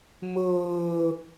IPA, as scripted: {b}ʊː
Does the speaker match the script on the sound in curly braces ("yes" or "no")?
no